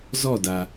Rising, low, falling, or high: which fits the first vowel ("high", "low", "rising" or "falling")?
falling